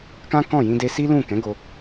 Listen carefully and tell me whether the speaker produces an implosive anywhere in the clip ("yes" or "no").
no